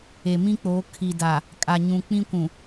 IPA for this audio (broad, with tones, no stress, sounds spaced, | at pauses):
e˨ m ĩ˦ k͡p oː˨˦ kʰ i˨ d a˨ | kʼ a˨ ɲ ũ˨ k͡p ĩ˦ kʷ ũ˨